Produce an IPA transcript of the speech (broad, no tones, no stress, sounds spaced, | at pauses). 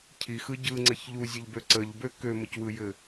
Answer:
cʰ i x ɯ ɟ ɯ ŋ͡ǀ ɘ ç ʎ u zʲ ɘ ʎ b ø ǀ ə ʎ b ø k ø m ə c w ɯ j ɘ